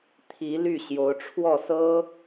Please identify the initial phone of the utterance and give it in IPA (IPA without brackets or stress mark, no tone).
t̪ʰ